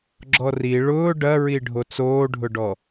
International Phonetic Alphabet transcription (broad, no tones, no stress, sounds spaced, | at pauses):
ɡ͡ǁ ɔ r i ɭ ʊː ɖ ɐ ɹ i ɖʱ o t͡s oː ɖʱ ʊ ɖ ɔ